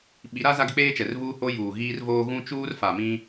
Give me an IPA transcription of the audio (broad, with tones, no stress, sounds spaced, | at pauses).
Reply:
ɓ i˨˦ ɾ a˦ z a˦ ɡ ɪ˦ k͡p eː˦ t͡ʃ ɛ˨ r v uː˦ h o˦ j uː˨ ɣ iː˦ r v oː˦ ɣ ũ˦ t͡ʃ uː˦ r f a˨ m ĩ˦